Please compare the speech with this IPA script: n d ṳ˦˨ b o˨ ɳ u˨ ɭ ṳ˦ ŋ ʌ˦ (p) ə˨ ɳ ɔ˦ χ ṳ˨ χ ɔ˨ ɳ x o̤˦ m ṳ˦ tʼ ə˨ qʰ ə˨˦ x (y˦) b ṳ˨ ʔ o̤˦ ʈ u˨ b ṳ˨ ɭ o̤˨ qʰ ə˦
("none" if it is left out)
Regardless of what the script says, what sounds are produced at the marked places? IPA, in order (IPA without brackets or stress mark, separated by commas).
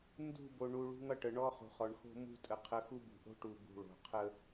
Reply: ʈ, u˦